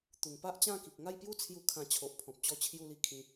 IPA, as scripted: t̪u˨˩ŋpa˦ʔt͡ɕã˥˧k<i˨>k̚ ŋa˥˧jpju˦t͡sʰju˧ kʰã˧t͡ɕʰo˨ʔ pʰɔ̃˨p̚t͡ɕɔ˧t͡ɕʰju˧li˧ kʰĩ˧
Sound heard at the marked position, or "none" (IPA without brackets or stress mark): i˨